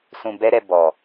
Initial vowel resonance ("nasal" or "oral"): nasal